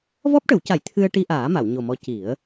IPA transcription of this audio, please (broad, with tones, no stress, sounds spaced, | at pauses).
v ɔ˦˥ p̚ ʈ ə˨˩˦ w c a˨˩˦ j t̪ʰ ɨ˧ ə̯ ʈ i˧ ʔ aː˨˩˦ m a˨˩˨ w ɲ o˨˩ m ɔ˧˥ c i˨˩˦ ə̯